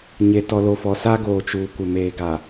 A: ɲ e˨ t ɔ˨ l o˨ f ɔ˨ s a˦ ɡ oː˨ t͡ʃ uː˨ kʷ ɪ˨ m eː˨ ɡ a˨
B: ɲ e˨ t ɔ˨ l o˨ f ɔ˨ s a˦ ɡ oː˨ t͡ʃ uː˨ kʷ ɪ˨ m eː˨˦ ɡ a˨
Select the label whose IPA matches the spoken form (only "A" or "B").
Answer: A